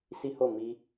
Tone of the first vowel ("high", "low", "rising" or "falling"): high